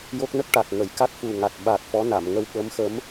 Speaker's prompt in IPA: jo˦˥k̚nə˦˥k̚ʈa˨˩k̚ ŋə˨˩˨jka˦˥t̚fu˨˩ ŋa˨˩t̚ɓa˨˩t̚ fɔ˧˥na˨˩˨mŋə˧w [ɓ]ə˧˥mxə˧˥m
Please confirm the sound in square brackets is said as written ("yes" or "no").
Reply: yes